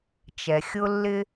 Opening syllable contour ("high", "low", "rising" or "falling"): low